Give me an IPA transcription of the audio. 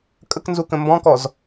kʼəknzukə̃ mbɔ̃kɔz

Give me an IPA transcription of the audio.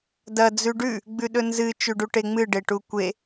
dɐ d͡zʉɖʉ | ɡ͡bʉɗɵnzɨ t͡ʃʉɖuʈeŋ͡mɨ ɖeʈukʷe

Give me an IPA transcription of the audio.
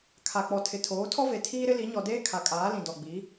kʰa˨k͡pɔ˨ tʰɪ˨tʰoː˨˦tʰɔ˦ve˨ tʰiː˦ɾɪ˦li˨˦ ɲɔ˨deː˦ kʰa˨kʼaː˨˦lĩ˨dɔ˨ ɡ͡bi˨˦

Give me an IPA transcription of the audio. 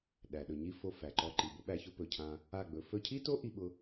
ɗæ˨ɗɵ˨ ɲi˦ fo˧fæ˨ǃɔ˧ǃi˨ bʊ˦ɓæ˧çʊ˦ pɵ˨cʰã˧ | a˦˨ɡ͡bɵ˨˦ fɵ˧cʰi˦to˦ ʔi˦ɓʊ˦

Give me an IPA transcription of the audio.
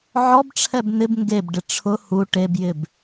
ʕɔbʈ͡ʂʰɛb nɪb ŋɡebɖɪ ʈ͡ʂʰʊ hu ʈebjɪb

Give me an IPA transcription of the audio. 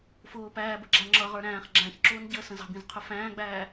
fʊː pæː bə̤ɡ͡ǁæŋ͡ǁʌʁə˞ ɾæ̃ːχ ɡ͡ǁæ̃çǁʊːn ɟəːsə̃zɑ̤bĩz qʰʊfæ̃ːɡ͡bæː

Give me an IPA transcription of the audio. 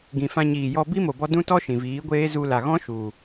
ɡĩ˨fã˧ɲiː˨jɔ˧ bi˦mo˨bɔ˧ dũ˦tɔ˦ ʃĩ˨viː˨˦ɡʷeː˦ zu˧la˨ɣɔ̃˦ ʃu˨

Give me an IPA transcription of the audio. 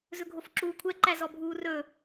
zɵɡʱofǁuːkʷʰɛ ǃæzɔbʱuːrɵ

